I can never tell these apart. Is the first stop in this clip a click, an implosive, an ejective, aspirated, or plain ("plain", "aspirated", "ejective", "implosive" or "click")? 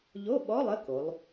implosive